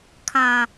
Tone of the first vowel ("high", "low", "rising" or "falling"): low